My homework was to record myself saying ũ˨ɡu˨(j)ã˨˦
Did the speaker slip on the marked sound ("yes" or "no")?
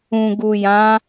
no